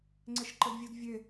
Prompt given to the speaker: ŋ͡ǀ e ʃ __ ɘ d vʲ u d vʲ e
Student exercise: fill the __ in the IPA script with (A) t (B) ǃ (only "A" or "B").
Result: B